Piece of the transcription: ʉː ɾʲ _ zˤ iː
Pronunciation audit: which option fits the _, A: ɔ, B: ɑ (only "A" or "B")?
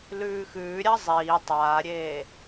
B